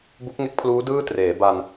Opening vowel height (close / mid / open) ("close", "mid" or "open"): close